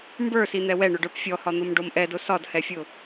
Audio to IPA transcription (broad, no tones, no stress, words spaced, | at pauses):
mbə˞sin̪ɛ wɛɳʊɖə˞p fʲɔhɒn̪omɖom ʔɛdʊ sɒdhɛfʲʊ